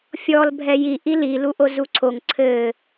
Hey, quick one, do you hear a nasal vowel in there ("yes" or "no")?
no